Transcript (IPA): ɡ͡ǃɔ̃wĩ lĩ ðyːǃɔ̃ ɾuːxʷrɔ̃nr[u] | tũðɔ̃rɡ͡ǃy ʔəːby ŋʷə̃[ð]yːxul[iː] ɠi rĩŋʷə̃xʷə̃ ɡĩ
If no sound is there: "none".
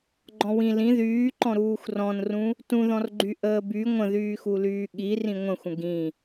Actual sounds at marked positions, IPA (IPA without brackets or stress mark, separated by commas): ũ, ð, yː